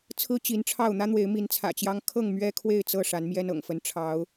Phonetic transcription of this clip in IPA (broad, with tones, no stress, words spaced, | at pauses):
t͡sʰɹ̩˦ t͡ɕi˨˦nʈ͡ʂʰɑ˥˨ʊ̯ n̪ä˦n̪we˨˦ɪ̯ mi˨˦nt͡sʰä̰˨˩t͡ɕjɑ˦ŋ kʰɤ˥˨ŋmɥɛ˦ kʰwe˥˨ɪ̯t͡sɤ˥˨ ʂa˨˦nmjɛ˦nɤ̰˨˩ŋfə˨˦n ʈ͡ʂʰɑ˨˦ʊ̯